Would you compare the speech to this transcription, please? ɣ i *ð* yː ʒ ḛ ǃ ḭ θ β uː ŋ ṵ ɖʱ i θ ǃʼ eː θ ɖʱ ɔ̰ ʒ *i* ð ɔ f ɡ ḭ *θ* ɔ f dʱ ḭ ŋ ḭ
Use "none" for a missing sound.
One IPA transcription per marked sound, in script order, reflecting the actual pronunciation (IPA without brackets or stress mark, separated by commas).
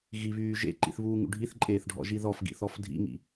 β, i, θ